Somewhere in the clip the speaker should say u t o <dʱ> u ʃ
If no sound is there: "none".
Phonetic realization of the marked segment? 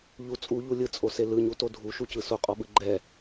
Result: dʱ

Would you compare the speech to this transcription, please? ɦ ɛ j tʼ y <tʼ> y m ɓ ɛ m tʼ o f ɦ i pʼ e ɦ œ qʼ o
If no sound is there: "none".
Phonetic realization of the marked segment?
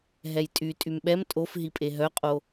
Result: tʼ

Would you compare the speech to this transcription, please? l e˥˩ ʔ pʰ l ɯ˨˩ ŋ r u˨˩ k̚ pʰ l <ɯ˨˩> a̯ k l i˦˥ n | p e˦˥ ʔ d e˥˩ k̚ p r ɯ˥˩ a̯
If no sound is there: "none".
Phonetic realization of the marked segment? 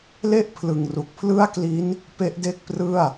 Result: ɯ˥˩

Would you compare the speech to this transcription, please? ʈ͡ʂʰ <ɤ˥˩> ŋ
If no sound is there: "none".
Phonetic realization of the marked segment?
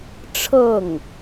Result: ɤ˥˩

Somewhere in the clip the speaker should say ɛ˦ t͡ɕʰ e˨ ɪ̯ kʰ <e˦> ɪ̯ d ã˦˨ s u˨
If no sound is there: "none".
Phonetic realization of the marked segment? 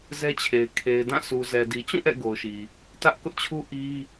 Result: e˨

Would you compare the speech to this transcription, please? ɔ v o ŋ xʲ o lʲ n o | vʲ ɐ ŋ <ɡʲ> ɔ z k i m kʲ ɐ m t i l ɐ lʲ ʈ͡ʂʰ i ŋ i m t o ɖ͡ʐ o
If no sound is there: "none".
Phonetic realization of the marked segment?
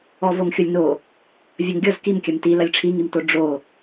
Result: ɡʲ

